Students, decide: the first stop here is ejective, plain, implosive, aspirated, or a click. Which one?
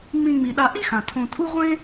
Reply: implosive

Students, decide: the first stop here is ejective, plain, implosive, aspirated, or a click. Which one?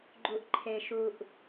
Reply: click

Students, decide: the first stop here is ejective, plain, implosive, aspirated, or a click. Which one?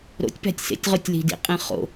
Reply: plain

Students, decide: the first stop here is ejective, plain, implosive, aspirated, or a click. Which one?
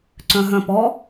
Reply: click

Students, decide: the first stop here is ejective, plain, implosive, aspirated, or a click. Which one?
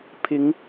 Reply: aspirated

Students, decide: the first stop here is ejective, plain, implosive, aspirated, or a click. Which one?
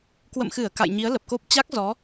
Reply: plain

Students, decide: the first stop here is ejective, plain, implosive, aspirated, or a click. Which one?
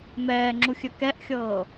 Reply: click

